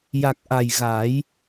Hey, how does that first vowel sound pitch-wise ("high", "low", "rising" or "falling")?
low